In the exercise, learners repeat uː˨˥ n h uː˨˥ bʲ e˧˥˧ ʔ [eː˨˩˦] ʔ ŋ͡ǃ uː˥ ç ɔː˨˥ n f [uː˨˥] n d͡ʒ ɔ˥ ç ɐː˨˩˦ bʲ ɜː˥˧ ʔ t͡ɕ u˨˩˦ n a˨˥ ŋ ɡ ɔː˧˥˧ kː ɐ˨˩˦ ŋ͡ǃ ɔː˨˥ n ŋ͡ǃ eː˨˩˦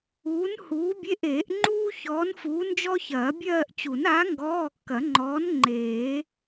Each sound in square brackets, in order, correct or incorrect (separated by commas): correct, correct